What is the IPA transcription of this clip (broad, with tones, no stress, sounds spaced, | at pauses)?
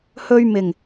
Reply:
h ɵ˧ ɥ m ɪ˨˩ ŋ